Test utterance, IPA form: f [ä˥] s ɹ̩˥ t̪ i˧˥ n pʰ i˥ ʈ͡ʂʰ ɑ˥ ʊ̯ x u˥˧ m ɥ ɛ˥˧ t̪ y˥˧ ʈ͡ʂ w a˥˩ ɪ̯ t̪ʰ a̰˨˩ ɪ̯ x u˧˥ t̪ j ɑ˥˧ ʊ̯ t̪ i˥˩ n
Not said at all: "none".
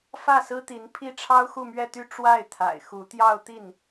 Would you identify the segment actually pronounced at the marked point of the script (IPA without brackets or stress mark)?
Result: ä˥˩